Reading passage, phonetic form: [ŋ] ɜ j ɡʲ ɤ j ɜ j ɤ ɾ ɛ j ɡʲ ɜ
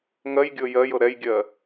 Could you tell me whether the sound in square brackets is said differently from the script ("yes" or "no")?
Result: no